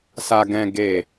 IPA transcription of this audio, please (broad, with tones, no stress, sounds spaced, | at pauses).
s a˨ ɡ ɛ̃˨ ɡ e˨